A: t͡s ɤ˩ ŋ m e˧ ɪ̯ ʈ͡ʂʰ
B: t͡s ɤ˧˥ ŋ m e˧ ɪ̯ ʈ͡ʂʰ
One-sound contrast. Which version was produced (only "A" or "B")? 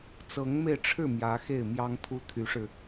B